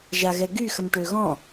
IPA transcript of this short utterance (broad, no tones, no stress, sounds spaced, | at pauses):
ʒ a ɣ ɛ ɡ y x ə m ʈ ø ɣ ɔ̃